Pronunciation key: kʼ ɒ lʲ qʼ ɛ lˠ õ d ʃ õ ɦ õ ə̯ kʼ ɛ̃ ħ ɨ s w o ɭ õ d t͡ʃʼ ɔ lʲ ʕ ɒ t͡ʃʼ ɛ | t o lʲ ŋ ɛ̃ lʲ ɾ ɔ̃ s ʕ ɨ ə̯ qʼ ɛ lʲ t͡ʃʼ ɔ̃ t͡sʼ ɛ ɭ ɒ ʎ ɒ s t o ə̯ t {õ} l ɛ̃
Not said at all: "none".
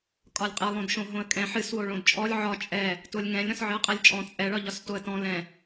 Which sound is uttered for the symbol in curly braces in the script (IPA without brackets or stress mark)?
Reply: ɔ̃